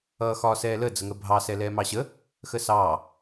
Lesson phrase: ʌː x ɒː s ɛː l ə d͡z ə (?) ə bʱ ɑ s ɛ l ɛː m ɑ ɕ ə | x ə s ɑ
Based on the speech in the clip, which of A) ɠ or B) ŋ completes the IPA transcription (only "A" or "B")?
B